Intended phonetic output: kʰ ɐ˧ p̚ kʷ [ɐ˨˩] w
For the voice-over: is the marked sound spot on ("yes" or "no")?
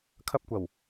yes